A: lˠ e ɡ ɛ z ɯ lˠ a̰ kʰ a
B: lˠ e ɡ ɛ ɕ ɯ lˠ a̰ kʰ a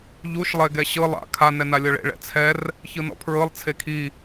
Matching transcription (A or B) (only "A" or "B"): B